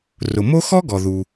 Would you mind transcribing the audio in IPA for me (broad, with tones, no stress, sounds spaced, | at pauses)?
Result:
r ʊ˩ m o˥ x ɔ˥ ɡ ɔ˩ ð u˩